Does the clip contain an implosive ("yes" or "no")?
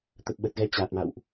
yes